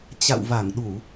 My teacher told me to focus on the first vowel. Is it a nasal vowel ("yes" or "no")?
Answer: no